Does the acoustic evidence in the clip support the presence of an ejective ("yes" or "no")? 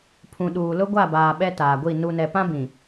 no